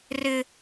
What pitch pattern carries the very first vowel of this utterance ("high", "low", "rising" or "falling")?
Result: high